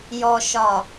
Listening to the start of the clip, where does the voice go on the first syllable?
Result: low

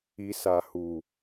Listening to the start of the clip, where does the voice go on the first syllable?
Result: low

